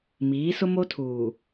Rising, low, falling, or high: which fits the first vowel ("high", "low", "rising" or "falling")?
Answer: rising